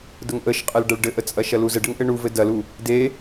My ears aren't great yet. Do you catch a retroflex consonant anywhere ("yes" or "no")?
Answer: yes